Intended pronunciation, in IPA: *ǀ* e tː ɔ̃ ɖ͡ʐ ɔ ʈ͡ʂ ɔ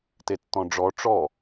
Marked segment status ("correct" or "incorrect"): incorrect